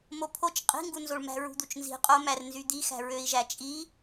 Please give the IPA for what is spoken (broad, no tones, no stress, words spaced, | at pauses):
mopʰot͡ʃ qʼi̤ŋɡunzoɭ mæ̤ɹṳd̪ut͡ʃnzi̤ qʼomær nzyd̪ixæ̤ ɹøi̯ʒæt͡ʃʼi